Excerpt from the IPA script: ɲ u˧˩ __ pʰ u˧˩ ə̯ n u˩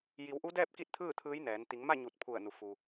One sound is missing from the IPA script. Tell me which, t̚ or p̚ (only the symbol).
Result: t̚